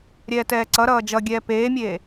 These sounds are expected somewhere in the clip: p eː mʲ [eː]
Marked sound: correct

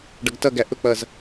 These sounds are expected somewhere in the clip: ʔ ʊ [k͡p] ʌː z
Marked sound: correct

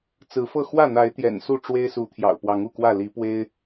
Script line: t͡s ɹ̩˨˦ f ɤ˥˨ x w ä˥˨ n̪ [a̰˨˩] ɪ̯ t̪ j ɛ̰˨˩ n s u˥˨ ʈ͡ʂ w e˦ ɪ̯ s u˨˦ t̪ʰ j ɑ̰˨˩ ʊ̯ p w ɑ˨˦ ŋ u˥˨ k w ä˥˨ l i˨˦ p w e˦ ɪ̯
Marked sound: incorrect: a˨˦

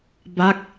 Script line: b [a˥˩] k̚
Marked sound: correct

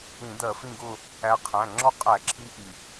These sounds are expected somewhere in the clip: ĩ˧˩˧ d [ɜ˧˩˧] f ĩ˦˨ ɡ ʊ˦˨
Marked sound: correct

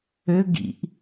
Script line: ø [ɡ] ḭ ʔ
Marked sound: correct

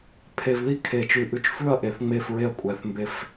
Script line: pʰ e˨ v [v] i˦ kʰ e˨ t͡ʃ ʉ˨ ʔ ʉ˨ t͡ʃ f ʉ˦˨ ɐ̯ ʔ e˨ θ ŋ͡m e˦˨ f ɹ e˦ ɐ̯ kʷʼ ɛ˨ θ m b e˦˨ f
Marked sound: incorrect: ð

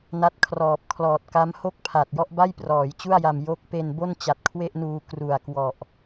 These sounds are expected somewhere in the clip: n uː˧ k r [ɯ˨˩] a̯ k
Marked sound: incorrect: u˨˩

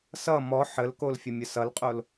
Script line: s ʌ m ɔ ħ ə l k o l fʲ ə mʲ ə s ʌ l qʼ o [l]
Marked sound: correct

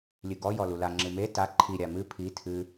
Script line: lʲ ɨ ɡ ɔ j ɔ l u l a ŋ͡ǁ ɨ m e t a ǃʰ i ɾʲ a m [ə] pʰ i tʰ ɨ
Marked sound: incorrect: ɨ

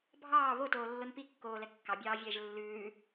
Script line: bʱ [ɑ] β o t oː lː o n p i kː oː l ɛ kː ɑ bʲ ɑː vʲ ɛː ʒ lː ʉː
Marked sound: incorrect: ɑː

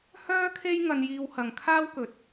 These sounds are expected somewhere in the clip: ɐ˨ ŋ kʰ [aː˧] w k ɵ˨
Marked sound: incorrect: aː˥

